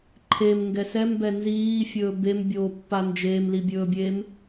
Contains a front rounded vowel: no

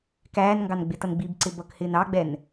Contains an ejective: no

